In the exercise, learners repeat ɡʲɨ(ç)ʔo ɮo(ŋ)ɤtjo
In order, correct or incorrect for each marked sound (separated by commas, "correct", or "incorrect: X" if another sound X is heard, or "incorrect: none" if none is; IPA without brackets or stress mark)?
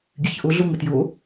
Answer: correct, correct